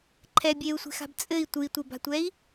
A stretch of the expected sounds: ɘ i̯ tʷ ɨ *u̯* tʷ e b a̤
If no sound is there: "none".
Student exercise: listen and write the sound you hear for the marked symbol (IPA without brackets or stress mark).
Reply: i̯